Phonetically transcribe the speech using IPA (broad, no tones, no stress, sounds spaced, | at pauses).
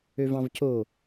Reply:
ø v ɑ̃ v c o